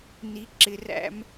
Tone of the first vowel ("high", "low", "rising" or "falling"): low